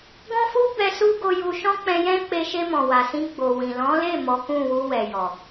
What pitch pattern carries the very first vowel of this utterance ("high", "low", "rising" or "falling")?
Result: high